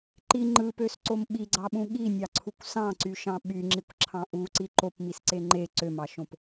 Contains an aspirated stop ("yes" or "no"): yes